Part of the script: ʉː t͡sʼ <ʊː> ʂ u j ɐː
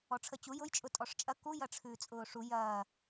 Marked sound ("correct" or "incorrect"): correct